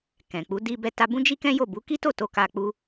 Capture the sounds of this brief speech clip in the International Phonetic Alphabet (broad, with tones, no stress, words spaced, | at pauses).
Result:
kɛ̃˨k͡pu˨˦ di˧ bɛ˧ta˧bũ˦d͡ʒi˦ kɛ̃˦jo˦˨ bu˨˦ki˦to˦˨ to˧ka˧k͡pu˦